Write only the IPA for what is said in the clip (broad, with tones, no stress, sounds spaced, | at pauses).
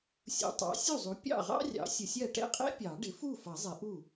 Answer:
sʲ ṵ˨ tˤ ɑ̰˩˥ sʲ u˥˩ zˤ u˩˥ pʲ ɑ̰˥˩ ʁ ɑ̰˥ rʲ ɑ̰˩˥ sʲ ʊ˨ sʲ ɜ˥˩ ʈ ɛ̰˥ qʼ ɛ̰˥ pʲ ɑ˨˩˦ ɖ ɪ˩˥ f u˥˩ f ʌ˨˩˦ zˤ ɪ˨˩˦ ʔ u˥˩